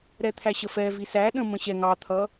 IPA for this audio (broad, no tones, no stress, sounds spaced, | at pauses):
ɾ ɛ t̪ʰ æ ɕ ə f ɛ v i s æ ɗ ə̃ m ə̃ ɕ ɛ ŋ ɑ t̪ʰ ʌ